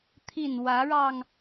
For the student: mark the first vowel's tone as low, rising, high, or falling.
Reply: falling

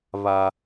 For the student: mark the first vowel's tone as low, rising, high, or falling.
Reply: high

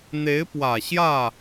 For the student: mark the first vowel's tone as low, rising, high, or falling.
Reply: rising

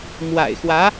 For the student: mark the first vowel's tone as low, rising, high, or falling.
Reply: low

